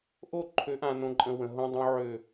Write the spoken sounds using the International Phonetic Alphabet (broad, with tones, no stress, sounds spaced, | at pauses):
ʔ o˦˨ ǃʰ ø˨˦ ʔ ã˨ n õ˨ ǃʼ ə̃˨ w ə̃˨ ɦ õ˦ dˤ õ˦ ʕ ø˦˨